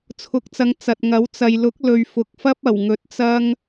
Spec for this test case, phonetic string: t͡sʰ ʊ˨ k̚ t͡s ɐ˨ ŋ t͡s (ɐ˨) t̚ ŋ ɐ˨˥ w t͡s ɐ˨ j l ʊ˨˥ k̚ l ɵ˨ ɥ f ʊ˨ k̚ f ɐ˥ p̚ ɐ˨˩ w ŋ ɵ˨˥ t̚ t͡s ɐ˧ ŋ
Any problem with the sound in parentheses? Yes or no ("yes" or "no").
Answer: no